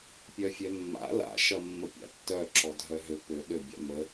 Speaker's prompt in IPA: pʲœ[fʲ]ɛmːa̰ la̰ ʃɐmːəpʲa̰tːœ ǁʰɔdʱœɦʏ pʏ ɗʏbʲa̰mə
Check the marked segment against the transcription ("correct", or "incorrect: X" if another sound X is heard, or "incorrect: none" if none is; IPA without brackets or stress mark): correct